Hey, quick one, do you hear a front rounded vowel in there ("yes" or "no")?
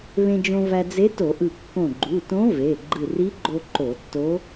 no